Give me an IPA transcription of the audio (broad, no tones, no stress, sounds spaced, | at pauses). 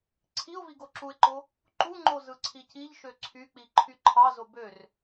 ǀʰ i ʊ̯ v i ɡ o ǁ u ɪ̯ ǃ o | ǃ u ŋ͡ǃ o z ɯ ǀʰ i c i ʎ ʃ ø ǀʰ y k͡p i ǃʰ y ǃʰ ɑ z o b ø r